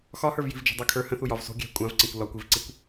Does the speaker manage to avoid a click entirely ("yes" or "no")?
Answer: no